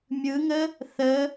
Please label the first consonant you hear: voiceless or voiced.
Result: voiced